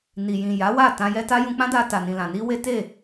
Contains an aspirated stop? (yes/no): no